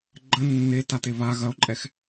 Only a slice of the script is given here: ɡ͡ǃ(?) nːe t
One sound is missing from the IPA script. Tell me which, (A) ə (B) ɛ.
A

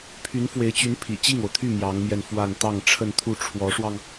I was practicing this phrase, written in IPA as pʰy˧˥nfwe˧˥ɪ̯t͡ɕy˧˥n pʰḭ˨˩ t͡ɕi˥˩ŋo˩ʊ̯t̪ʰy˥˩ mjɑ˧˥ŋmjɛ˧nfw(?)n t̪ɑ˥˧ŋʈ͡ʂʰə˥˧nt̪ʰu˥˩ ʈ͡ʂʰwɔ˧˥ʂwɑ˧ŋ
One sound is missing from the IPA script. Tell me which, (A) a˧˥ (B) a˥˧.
B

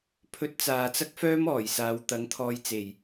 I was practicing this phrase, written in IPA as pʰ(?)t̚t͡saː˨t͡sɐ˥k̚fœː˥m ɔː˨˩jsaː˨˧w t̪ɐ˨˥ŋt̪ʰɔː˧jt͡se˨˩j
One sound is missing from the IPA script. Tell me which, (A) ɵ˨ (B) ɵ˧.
B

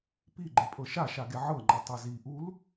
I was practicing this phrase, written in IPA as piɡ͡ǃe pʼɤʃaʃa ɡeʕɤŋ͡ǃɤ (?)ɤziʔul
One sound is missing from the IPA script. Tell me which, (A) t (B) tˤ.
B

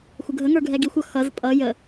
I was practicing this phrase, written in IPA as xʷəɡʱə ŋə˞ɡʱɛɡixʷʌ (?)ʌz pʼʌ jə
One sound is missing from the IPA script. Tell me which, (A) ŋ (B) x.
B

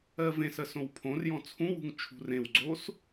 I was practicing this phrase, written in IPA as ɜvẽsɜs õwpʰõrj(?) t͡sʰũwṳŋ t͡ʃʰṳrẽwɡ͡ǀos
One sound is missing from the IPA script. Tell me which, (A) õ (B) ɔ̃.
B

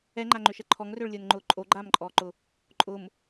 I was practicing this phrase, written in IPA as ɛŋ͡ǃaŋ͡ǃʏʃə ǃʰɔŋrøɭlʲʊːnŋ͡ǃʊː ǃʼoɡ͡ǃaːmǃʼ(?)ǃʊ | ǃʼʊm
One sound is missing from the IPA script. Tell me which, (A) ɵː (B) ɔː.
B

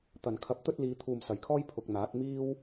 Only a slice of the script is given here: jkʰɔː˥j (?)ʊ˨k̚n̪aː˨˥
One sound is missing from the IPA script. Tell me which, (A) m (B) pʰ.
B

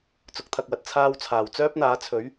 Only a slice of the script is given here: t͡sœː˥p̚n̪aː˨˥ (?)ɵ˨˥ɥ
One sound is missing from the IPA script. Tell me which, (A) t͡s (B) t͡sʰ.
B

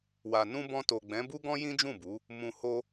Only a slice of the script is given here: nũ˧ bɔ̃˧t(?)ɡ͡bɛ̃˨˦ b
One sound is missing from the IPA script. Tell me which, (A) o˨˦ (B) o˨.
B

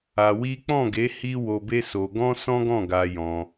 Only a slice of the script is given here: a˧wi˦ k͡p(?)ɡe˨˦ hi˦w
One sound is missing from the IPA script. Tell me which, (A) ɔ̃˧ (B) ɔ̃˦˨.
B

